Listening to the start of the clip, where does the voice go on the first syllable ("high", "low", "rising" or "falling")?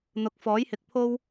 rising